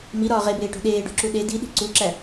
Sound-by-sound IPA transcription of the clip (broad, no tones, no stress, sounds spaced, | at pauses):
m i ɾ ɒː ʁ e b eː ʈ o̤ ɗ eː ɖ o̤ ǁ u ɗ e d i ɗ i̤ ǀ u ǁ æ